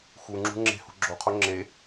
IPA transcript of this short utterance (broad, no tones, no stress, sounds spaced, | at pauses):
x u ŋ͡ǁ ṳ ŋ͡ǁ e̤ h ṳ ɡ͡ǁ o qʰ o ŋ͡ǁ e